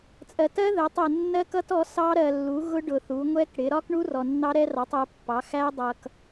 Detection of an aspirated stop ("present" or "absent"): absent